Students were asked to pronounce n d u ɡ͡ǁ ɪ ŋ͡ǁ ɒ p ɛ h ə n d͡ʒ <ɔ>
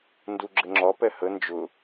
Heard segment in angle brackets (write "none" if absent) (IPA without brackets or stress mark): ʊ